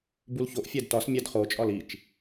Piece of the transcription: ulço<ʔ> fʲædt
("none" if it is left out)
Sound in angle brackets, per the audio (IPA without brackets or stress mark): ʔ